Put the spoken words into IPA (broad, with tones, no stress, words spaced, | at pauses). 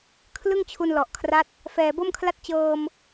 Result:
kʰlɯ˥˩ŋt͡ɕʰu˧nlɔ˨˩ʔkʰra˦˥t̚ | fɛː˨˩ bo˥˩mkʰla˥˩t̚ t͡ɕɤː˧m